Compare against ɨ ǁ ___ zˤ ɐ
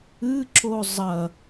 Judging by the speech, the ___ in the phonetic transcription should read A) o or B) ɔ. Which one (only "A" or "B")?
A